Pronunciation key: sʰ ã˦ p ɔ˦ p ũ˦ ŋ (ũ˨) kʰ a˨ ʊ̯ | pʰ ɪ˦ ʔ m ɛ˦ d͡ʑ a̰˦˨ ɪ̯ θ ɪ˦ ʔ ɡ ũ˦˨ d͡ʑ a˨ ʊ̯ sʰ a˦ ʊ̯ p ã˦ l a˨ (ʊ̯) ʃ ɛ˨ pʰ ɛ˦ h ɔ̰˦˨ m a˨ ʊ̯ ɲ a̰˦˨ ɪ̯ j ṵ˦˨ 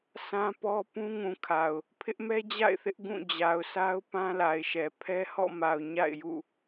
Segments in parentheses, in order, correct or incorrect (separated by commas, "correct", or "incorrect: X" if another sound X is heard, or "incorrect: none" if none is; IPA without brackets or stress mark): correct, incorrect: ɪ̯